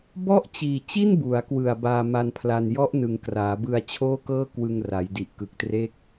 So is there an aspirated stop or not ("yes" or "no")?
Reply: yes